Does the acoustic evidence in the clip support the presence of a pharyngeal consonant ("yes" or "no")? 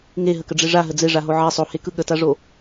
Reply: yes